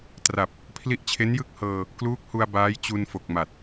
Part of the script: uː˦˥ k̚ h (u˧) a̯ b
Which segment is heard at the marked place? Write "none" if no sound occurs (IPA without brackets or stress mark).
u˧